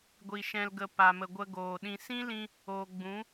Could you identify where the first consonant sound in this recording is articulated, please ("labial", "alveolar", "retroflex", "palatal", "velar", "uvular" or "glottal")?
velar